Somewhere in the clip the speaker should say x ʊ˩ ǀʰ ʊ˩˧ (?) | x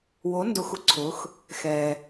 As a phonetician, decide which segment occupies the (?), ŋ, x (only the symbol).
x